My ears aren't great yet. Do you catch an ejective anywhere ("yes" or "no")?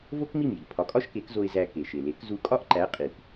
yes